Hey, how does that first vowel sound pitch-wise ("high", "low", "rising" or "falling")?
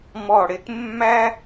falling